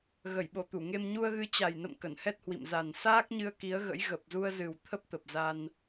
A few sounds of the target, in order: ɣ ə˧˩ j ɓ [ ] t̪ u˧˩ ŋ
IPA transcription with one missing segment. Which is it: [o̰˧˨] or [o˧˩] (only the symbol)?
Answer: o˧˩